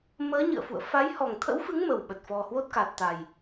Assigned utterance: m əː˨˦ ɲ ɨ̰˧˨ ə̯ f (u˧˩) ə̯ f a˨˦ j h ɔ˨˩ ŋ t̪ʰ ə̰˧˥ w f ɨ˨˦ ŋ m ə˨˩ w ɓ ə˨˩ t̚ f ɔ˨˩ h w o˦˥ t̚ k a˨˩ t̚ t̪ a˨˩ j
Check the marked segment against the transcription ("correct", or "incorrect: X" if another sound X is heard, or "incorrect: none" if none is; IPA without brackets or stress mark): incorrect: ṵ˧˨